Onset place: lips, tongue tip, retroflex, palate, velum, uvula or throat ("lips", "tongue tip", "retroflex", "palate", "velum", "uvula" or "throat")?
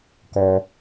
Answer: velum